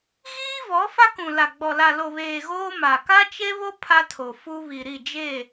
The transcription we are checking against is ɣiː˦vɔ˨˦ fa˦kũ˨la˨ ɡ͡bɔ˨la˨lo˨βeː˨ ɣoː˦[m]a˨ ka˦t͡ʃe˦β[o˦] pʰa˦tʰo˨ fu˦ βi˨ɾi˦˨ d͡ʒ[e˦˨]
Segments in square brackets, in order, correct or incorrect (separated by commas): correct, correct, correct